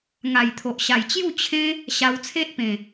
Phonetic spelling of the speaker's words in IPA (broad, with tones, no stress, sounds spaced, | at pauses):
ŋ a˨˩ j t̪ʰ o˨ ʔ ɕ a˨˩ j t͡ɕ j u˥˧ t͡ɕʰ ẽ˦ | ɕ a˧ w t͡sʰ e˦ ʔ p ẽ˨˩